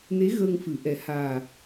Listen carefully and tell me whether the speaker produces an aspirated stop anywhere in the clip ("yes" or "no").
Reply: no